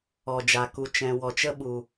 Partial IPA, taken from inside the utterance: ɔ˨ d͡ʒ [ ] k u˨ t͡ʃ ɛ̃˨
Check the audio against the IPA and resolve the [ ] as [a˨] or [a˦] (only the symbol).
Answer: a˨